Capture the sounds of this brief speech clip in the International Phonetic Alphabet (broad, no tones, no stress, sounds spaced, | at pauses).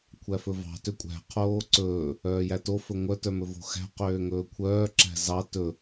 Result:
kʷʰ æ f ɵ v ɑ̤ t ø kʷʼ æ̤ qʰ oː ǀ ɵː | œː j æ t o f ɵ ŋʷ œ t œ m ɵ v o̤ x æ̤ q øː ŋ ɵː kʷʰ œː ǁ æ̤ z ɑ t ɵ